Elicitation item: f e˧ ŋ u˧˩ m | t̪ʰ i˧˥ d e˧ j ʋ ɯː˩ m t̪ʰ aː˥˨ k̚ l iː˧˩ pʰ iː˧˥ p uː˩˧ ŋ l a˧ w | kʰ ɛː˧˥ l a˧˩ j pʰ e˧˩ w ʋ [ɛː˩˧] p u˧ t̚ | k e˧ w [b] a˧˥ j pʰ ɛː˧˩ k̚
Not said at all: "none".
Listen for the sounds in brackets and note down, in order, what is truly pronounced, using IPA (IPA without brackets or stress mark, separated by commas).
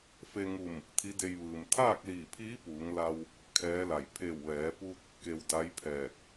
ɛː˩˧, d